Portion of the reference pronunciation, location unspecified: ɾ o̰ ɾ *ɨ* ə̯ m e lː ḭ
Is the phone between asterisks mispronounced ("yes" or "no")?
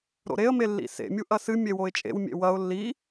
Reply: yes